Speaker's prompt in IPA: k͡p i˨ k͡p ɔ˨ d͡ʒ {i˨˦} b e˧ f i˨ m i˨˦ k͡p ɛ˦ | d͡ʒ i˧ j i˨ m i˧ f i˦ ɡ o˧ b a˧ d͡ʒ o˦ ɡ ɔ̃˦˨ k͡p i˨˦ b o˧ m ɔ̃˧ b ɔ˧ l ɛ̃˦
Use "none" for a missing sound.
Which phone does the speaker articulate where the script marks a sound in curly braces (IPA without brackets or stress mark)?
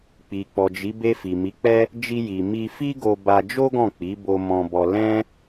i˨˦